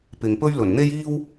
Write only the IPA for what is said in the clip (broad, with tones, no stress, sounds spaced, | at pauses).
p ɪ˨ ŋ p ɵ˥ ɥ l ɵ˨˩ n n̪ e˥ j iː˥ w